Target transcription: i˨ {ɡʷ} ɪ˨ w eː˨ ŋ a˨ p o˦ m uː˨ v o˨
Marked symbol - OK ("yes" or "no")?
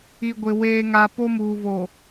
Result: yes